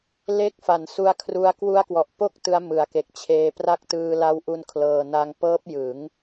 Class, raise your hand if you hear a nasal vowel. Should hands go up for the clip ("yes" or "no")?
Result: no